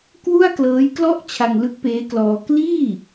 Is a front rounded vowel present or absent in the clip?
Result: absent